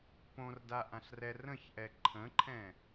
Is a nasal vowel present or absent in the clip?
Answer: present